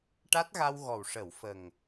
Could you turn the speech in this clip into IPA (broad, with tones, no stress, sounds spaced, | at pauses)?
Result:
ʈ a˦˥ t̚ ɣ a˧ w ɣ ɔ˨˩ w ʂ ə˨˩˨ w f ə˨˩ ŋ